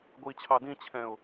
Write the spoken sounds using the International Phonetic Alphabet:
ɡʷit͡ɕʰɑ dĩt͡ɕʰɛ̃ʊ̯

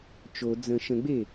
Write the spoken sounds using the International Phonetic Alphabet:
t͡ʃo d͡zə̃ ʃə̃ɡ͡be

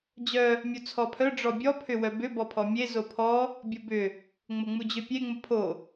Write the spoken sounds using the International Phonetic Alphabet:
d͡ʑœ | mʲut͡sʰɔpʰœ ɖ͡ʐɔbʲɔ pʰʏwœbʏ bɔpʰɔmʲe zopʰɔ | bʲobʏ | ŋ͡mʊŋ͡mud͡ʑʏpʲe ŋ͡mʊpʰo

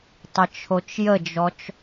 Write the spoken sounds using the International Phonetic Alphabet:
tˤət͡ʃʰot͡ʃjəd͡ʒɔt͡ʃ

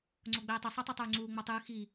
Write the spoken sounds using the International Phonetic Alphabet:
ŋ͡ǀoɡ͡bɛːtˤi sˤetˤɯtˤuːŋ͡ǀuː ŋ͡matˤɯː xi

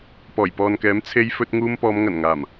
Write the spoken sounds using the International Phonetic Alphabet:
pɔː˨˩jpɔː˨nkɛː˨˥m t͡sʰe˧j fɵ˧t̚ŋuː˧m pɔː˨˧mŋɐ˨˩nŋaː˨˩m

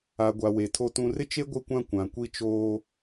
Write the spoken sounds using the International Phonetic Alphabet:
a˨ɡʷa˨ we˨tʰo˦tũ˦ rɪ˦t͡ʃe˦ ɡʷɪ˦kʷã˦ kʷã˨kʷi˦t͡ʃoː˦

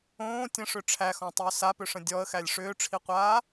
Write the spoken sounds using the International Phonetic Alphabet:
õː tʲə̃ʂʏ ʈ͡ʂʰæxɔ̃tˤʏː sapʏʂə̃ dʲɔə̯xælʲ ʂʏːʈ͡ʂʰiqʷaː

